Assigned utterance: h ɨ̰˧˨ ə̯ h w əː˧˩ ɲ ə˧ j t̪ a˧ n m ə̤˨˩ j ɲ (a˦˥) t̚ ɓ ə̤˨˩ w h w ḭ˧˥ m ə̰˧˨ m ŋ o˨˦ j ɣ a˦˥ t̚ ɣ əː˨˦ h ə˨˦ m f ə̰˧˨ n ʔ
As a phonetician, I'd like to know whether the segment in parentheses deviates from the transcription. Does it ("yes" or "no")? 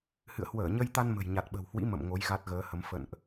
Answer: yes